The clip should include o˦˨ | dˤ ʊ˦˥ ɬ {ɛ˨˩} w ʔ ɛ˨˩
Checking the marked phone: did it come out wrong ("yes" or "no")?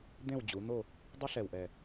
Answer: no